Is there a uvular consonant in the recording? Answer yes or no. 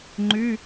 no